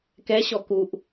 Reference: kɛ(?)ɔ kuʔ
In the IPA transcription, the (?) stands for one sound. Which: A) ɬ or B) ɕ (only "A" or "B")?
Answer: B